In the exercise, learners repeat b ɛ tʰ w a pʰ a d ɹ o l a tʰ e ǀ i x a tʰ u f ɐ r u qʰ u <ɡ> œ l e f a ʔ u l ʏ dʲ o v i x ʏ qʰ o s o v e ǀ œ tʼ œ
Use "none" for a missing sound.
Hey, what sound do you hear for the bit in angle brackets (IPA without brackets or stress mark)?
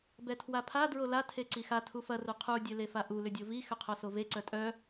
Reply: dʲ